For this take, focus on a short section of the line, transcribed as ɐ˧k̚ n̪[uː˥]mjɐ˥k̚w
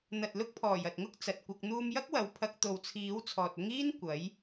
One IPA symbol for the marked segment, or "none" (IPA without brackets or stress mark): uː˧